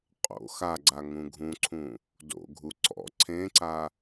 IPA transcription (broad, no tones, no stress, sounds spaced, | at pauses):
qʼ o̰ x a ɡ͡ǀ a ŋ ũ ɡʱ ũ ǀʰ ũ | d o̰ ɡʱ u ǀ ɔ̰ ǀʰ ẽ ǀ a